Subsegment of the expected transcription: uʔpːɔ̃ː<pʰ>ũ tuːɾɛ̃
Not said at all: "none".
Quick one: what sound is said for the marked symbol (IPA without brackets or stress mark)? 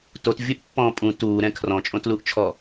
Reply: pʼ